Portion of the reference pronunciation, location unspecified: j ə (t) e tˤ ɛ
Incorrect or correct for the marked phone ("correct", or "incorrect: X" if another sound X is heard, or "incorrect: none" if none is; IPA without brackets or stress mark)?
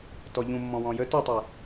correct